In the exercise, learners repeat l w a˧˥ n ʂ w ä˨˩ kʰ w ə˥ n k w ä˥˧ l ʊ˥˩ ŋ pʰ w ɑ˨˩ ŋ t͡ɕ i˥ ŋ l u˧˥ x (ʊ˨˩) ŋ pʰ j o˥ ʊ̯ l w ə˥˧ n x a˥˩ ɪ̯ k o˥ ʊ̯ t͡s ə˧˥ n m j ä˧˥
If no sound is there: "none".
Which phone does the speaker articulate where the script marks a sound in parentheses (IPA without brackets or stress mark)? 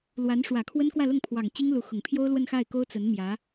ʊ˨˩